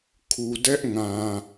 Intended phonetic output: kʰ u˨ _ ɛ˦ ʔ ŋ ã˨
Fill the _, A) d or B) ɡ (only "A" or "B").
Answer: A